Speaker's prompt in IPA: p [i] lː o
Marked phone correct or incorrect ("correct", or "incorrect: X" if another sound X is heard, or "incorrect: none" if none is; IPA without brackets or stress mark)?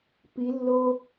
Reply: correct